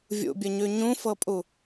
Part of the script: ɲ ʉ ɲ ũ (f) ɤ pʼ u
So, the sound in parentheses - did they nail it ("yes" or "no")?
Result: yes